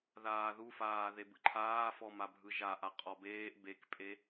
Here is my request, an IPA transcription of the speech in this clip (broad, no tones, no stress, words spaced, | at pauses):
ðaːðufaː ðebɯǃʰaːfɔ mabʱɯʒaʔa qʼɔbeːʔ bekpʼe